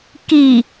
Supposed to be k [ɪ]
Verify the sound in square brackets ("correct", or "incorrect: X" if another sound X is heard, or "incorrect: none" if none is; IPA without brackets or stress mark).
incorrect: i